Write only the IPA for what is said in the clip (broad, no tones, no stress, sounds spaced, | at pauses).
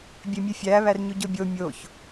bʲ e mʲ e fʲ æ β æ r ɲ u ɟ o bʲ o mʲ o ç